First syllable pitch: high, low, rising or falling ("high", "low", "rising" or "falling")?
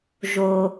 low